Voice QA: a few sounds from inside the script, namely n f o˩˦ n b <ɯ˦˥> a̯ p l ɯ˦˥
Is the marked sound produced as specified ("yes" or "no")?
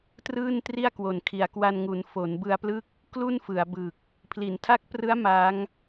no